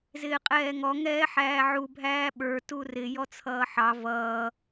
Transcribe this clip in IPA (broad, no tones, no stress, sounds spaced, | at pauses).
z ɪː qʼ ɛː ŋ ɔ ŋ ɛː ħ æː ʕ u bʱ æː ɓ ə˞ t u r ɪ j ɔ t͡sʰ ʌː ħ ɑ v ʌː